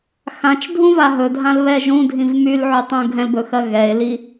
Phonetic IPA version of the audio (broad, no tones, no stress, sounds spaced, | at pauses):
x ã t͡ʃ dʱ ũ v a ɦ ɵ dʱ ã l β ɛ ʒ ũ dʱ ĩ v m y l ʕ y tˤ ũ ɡʱ ɛ̃ l b ɵ x ɜ ɣ ɛ e̯ l i